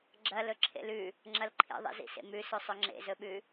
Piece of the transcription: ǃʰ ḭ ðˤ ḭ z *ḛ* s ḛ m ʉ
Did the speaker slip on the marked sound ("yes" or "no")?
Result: yes